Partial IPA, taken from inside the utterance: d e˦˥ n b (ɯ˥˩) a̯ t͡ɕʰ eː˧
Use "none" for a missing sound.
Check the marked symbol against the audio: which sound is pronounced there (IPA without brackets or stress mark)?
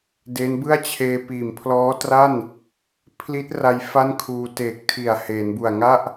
ɯ˥˩